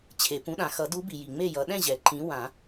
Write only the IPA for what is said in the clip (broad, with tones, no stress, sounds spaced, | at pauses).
t͡ɕʰ e˩ p ũ˨˦ ɗ ã˩ x ʌ˨˩˦ d u˨˦ b i˩ j i˩ ŋ͡m e˥˨ j ʌ˨˦ ɗ ɛ̃˥˨ ʑ ɛ˩ ǃ ĩ˨˦ w ã˨˩˦